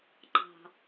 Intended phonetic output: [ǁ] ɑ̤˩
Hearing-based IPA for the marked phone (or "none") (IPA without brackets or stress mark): ǃ